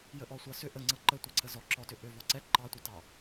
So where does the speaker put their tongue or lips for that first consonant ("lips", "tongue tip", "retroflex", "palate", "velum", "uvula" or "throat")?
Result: palate